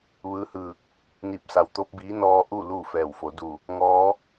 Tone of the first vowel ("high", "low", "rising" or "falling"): rising